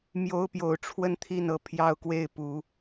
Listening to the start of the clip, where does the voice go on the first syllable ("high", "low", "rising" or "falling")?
high